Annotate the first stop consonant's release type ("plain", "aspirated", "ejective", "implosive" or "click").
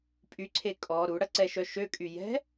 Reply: ejective